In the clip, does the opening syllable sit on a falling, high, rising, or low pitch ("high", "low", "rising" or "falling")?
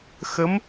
rising